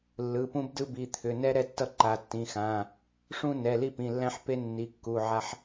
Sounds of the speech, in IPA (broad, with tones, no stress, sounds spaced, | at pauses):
lː ɯ˩˧˩ p ũ˦ b d ɯ˦ b i˩˧˩ t̪ʰ ʏ˩˧˩ n ɛ˦ ɾ ɛ˦ tː ʌ˦ ǃ a˩˧˩ tː ĩ˩˧˩ x ã˩˧˩ | ʂ ũ˦ n ɛ˩˧˩ l i˦ p ĩ˩˧˩ lː æ̃˦ ħ p e˦ nː i˩˧˩ kː u˩˧˩ ʕ a˦ ħ